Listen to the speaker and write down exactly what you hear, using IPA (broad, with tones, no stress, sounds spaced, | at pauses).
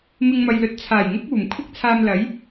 m ɪ˧ ŋ m ɐ˨ j l ɵ˨˥ t̚ t͡sʰ aː˨˩ j ŋ ʊ˥ k̚ uː˨˩ m kʷʰ ɪ˥ k̚ t͡sʰ aː˧ m l ɐ˨˥ j